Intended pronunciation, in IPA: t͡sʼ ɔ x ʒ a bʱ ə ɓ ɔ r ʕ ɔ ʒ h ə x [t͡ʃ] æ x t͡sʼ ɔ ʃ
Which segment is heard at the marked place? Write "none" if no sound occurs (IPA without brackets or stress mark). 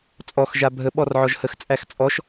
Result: t͡sʼ